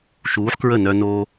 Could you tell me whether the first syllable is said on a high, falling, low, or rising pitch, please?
rising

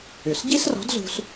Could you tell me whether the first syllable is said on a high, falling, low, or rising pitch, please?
low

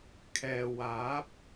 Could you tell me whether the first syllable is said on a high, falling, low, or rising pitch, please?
low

